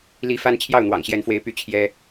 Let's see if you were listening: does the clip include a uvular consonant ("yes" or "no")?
no